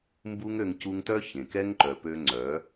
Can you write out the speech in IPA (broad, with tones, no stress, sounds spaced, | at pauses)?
m b u˦ ŋ ø˧ ŋ c u˧ ŋ t œ˦ ç ẽ˨ k ɛ˦ ŋ ǃ œ˨ p ø˧ ŋ͡ǀ œ˨˦